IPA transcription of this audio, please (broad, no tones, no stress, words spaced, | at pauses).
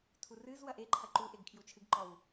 tʰurɨzwɐ ʔeǃʰɐ ǃu ʔeɡkʰjut͡ʃʰɨɡǃɔw